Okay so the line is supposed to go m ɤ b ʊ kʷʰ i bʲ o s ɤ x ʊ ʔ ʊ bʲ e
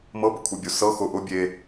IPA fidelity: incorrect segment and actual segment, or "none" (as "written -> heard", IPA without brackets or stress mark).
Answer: none